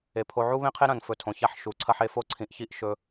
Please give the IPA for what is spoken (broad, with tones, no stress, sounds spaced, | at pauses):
e˨ pʰ o˧ ʕ u˦ β ẽ˦ qʰ e˦ ɾ ɐ̃˨ n f ɵ˨ tʰ õ˨ ç a˦ ħ ʃ u˨˦ ǀʰ ɐ˦ ħ e˨˦ f o˦ ǀʰ ĩ˧ ʔ ç i˦ ʔ ʃ ɵ˦